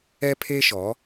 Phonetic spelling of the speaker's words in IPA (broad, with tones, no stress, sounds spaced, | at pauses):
ɛ˦ pʰ eː˦ ʃ ɔ˨˦